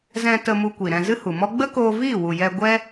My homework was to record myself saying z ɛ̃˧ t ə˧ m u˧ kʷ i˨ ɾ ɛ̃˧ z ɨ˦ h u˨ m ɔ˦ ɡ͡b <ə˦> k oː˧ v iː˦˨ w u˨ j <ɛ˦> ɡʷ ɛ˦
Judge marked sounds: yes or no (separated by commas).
yes, no